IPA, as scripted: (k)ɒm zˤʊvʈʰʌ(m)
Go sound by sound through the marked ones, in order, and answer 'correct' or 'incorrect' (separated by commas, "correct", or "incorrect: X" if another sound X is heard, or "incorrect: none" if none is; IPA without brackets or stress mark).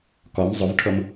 correct, correct